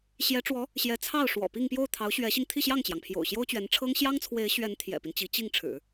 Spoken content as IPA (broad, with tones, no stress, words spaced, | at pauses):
ɕjɛ˧˥ʈ͡ʂwɔ˧˥ | ɕjɛ˧˥ t͡sʰɑ˥˩ʊ̯ʂwɔ̰˨˩pi˥˧ŋpjo˥˩ʊ̯ t̪ʰɑ˧˥ʊ̯ɕɥɛ˧˥ɕi˧ŋ t̪ʰi˥˧ɕjɑ˥˩ŋt͡ɕjɑ˩ŋpʰjo̰˨˩ʊ̯ ɕjo˥ʊ̯t͡ɕɥɛ˧˥nʈ͡ʂʰɤ˥ŋ ɕjɑ˥ŋt͡sʰwe˧˥ɪ̯ɕɥɛ˧˥n t̪ʰjɛ̰˨˩pi˦n t͡ɕi˧˥ t͡ɕi˥˩ŋ ʈ͡ʂʰɻ̩˨˩˦